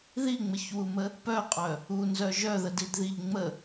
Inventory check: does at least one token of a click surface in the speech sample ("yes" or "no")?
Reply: no